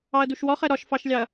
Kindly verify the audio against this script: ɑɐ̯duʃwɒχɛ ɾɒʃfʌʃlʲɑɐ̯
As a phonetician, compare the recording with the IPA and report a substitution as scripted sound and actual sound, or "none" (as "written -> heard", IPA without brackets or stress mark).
ʌ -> ɑ